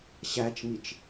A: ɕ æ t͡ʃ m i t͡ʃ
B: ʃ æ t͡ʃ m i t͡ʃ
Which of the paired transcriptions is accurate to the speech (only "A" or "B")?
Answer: A